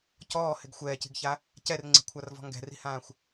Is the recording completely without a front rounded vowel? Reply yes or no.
yes